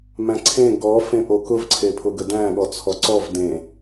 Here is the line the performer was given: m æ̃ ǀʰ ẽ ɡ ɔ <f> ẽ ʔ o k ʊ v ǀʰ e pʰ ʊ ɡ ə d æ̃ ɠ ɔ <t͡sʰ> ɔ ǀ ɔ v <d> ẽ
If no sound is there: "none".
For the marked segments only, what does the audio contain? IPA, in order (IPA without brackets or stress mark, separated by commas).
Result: f, t͡sʰ, d